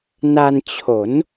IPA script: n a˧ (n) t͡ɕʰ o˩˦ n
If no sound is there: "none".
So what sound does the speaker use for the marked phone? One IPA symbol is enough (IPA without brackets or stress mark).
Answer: n